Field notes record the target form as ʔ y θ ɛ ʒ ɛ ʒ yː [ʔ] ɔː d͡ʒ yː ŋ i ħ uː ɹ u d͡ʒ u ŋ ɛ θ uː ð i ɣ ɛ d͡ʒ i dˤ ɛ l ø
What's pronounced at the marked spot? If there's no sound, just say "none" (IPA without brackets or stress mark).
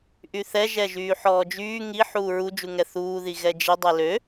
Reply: ħ